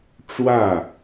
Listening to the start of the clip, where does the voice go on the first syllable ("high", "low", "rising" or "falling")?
falling